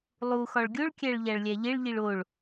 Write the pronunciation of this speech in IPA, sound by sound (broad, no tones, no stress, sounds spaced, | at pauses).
lˠ u x ɒ ɭ ɡʲ o ɭ kʲ æ ɭ ʎ æ ɭ lʲ æ ʎ e ɭ ʎ i ɭ o ɭ